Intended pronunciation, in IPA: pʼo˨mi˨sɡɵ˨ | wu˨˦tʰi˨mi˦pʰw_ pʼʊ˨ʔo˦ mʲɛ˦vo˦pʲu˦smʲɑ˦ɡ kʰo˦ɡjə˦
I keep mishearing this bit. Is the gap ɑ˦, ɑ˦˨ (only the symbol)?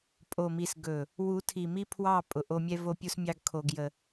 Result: ɑ˦˨